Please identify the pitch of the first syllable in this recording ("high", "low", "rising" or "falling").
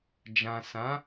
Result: low